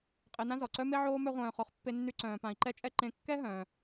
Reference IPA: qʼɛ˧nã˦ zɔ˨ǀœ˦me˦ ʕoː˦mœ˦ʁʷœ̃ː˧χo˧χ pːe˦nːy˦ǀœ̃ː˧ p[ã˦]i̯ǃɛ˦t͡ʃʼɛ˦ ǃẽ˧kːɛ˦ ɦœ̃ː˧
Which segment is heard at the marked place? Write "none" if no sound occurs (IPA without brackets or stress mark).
ã˧